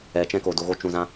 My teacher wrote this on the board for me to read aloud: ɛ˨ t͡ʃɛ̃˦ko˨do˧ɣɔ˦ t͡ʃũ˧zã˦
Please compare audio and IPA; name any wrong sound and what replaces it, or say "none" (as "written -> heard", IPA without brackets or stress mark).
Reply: ɔ˦ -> o˦